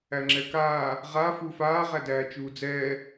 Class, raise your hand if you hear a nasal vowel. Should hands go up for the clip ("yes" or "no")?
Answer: no